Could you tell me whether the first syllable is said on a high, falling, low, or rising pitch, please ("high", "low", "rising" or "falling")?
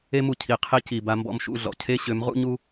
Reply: high